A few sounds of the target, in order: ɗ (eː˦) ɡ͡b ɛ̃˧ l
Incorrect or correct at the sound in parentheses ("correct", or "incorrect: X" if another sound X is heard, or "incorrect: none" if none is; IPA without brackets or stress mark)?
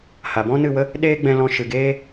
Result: correct